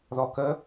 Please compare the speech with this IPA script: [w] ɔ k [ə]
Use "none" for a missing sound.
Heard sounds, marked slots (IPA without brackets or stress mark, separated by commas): ð, ə